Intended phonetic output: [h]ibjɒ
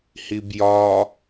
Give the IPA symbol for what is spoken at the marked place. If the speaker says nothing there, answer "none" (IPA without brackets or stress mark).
h